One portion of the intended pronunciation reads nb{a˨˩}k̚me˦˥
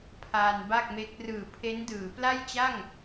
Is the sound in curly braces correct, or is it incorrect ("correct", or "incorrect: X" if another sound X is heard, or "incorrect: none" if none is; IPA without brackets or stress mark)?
incorrect: a˥˩